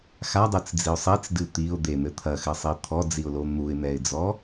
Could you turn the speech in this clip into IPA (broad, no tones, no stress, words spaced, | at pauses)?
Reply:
xadˤɨt͡sd͡ziʊ̯ sˤit͡sdɨ t̪iʊ̯ d̪en̪ɘ t̪ʰɐxɘsˤi t̪ʰɔd͡ziʊ̯lo n̪uɪ̯n̪ɛɪ̯d͡zɔ